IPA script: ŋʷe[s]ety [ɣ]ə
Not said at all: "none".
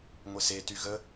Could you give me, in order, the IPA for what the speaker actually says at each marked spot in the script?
s, ɣ

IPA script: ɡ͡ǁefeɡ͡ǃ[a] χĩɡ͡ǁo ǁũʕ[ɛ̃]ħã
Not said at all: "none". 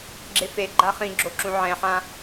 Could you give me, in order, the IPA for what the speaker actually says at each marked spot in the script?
a, ɛ̃

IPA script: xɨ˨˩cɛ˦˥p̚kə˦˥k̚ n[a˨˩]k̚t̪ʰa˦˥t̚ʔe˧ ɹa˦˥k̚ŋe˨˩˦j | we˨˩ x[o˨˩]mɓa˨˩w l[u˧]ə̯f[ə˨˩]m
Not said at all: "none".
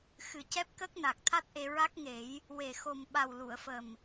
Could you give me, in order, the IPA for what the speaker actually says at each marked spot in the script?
a˨˩, o˨˩, u˨˩˨, ə˨˩

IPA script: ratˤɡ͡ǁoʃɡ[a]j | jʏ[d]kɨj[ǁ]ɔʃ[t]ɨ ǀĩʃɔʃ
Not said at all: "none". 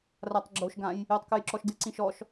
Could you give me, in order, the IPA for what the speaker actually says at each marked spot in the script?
ã, tˤ, ǁ, d

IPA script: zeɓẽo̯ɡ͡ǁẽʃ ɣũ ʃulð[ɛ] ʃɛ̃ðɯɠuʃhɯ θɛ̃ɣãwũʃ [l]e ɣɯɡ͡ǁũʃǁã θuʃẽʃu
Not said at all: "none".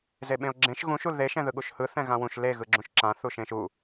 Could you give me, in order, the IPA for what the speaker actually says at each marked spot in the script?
e, l

